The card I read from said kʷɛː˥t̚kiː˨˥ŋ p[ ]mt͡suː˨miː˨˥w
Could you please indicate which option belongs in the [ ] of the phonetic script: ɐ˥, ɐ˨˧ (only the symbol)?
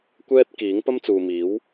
ɐ˥